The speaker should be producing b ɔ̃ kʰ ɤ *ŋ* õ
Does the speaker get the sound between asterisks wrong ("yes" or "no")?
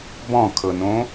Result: yes